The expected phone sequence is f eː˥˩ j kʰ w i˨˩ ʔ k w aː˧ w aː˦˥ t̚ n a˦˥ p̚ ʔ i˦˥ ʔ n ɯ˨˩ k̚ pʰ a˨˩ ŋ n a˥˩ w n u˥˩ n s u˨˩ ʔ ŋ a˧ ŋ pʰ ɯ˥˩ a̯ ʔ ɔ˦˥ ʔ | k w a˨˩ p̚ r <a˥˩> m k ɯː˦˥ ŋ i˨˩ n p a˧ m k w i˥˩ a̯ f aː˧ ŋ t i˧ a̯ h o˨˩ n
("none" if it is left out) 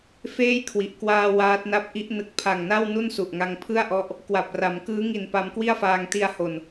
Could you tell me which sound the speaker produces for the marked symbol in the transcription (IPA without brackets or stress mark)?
a˩˦